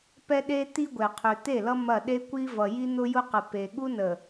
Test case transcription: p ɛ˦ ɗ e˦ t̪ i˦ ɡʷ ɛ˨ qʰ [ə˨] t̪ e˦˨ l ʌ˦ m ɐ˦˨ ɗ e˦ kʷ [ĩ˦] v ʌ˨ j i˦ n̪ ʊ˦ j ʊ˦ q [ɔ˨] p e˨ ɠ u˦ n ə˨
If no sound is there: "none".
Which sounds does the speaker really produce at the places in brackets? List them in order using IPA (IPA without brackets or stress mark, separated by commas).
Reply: ø˨, i˦, ə˨